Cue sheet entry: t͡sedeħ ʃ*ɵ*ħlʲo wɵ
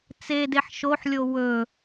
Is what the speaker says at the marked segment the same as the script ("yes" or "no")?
no